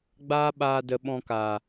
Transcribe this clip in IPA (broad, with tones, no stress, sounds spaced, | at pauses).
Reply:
ɡ͡b aː˦ ɓ aː˧ d ə˧ ɓ ɔ̃˧ k aː˨